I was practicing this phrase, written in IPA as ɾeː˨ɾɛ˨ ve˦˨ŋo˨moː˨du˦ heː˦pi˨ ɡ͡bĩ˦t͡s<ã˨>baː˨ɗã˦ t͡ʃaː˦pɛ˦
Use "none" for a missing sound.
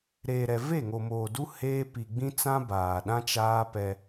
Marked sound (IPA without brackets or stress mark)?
ã˦